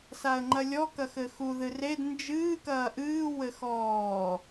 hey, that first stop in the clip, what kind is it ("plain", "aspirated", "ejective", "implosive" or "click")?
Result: click